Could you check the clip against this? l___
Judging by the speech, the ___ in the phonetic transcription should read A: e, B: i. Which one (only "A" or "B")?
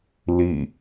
B